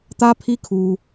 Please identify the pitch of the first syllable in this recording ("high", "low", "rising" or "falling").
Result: high